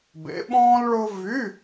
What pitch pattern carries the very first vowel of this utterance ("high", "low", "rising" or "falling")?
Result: rising